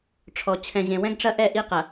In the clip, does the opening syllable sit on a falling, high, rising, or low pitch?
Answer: low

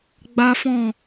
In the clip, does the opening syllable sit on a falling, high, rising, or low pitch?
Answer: high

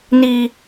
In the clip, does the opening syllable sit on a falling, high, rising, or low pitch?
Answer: low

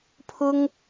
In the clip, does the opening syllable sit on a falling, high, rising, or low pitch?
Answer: high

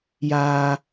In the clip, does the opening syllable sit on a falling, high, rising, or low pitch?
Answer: low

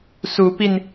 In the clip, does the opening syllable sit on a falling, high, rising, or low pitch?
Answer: rising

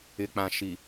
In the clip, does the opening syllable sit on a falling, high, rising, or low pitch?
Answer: low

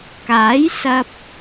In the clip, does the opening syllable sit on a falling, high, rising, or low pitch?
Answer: rising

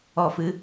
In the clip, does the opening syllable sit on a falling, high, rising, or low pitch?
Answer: low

